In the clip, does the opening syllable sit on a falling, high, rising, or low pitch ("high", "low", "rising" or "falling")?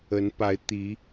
rising